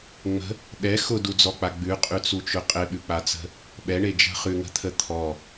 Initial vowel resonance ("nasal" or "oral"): oral